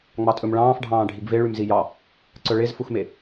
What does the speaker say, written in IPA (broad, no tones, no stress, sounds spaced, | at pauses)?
ŋ͡m ɑ tʼ ɵ m ɭ ɑ̃ː f ɖʱ ɑ̃ː ɖʱ i ɡ v e ɭ y m z i j ɑ | ǀ œ ɭ e z f u x m e